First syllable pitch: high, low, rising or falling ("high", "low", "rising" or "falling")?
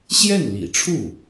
falling